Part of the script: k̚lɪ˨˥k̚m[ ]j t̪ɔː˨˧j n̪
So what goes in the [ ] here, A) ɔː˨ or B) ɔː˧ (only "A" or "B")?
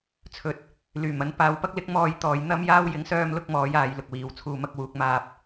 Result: B